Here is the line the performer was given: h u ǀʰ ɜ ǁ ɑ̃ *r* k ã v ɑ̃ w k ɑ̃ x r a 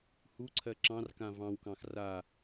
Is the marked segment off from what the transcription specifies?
no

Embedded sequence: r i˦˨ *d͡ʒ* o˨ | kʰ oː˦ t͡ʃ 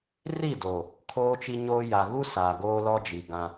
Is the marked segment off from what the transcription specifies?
yes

